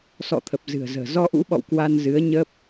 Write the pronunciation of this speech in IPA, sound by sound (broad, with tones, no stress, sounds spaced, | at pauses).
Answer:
s ɔ̰˧˨ t̪ʰ ə˨˩ p̚ z ɨ̤˨˩ ə̯ z ə̤ː˨˩ z ɔ˧ ʔ ṵ˧˥ ɓ ɔ̰˧˨ w k w a˧ n z ɨ˨˦ ə̯ ɲ ə˦˥ p̚